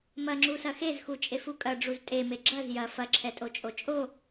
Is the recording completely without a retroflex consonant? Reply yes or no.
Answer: no